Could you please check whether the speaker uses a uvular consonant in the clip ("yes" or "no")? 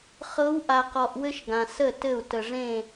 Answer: yes